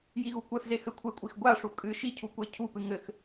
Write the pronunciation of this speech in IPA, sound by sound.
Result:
j i ɣ u kʷ ɛ f z e x ɘ kʷʰ e kʷʼ i x ɡʷ a ʂ u kʼ ɨ ʃ i cʰ u kʷ e cʰ u p ɨ ŋ ɘ x

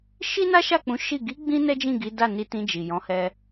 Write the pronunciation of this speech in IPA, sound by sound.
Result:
ʃ i˦ n a˦ ʃ a˦˨ k͡p ũ˨˦ ʃ i˦˨ ɡ i˨˦ ɡ͡b ĩ˧ n ɛ˦ d͡ʒ ĩ˦˨ ɡ i˨˦ d a˦˨ n i˧ t ĩ˧ d͡ʒ i˨ j ɔ̃˨˦ h ɛ˧

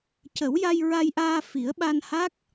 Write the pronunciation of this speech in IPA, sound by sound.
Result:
c ə˨˩˦ w j a˧ j ɹ a˧ j ʔ aː˧ f i˨˩˦ ə̯ ɓ a˧ n h a˦˥ k̚

